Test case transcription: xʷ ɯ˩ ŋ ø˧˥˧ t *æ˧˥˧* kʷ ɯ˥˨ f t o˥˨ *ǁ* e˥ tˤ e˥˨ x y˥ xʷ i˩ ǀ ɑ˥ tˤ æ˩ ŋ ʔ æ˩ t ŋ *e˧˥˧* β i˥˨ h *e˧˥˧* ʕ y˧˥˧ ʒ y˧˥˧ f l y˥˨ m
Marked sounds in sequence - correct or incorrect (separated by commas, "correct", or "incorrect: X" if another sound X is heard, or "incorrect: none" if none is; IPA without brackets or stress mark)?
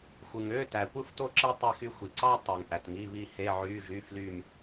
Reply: incorrect: æ˩, correct, incorrect: i˧˥˧, correct